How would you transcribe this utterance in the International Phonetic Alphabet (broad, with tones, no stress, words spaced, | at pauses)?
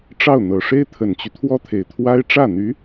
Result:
ʈ͡ʂɑ˥˩ʊ̯n̪ɤ˨˩ ʂe˥ɪ̯t̪ʰə˨˩nt͡ɕy˦ t̪ʰwɔ˥t̪ʰe˨˩ɪ̯t̪ʰwa˥ɪ̯ ʈ͡ʂä˥˩n̪y˧˥